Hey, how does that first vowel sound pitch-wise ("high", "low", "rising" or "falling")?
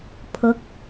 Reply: rising